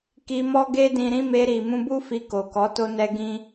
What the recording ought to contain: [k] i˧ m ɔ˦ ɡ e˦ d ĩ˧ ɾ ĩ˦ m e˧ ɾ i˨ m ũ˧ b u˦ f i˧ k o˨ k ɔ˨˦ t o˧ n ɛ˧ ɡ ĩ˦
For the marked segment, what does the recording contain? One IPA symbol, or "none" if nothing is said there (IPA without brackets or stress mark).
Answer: k